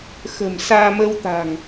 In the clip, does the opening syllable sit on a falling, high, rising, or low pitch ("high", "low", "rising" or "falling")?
low